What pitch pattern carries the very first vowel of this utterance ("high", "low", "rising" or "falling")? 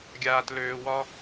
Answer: low